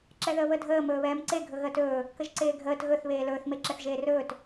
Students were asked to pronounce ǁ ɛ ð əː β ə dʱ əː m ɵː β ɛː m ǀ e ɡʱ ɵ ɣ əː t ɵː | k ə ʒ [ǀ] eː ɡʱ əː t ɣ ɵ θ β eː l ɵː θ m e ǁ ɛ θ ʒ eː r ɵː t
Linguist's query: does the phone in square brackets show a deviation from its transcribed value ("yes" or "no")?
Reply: no